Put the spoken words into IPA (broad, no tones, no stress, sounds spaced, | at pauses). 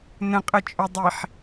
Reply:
n ə̃ qʼ ə t͡ʃʼ o dˤ i ħ